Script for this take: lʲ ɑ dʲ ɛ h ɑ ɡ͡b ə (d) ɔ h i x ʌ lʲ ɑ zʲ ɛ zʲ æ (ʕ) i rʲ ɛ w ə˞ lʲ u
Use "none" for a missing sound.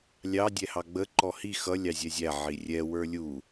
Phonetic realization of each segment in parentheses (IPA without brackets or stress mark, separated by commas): ǃ, ʕ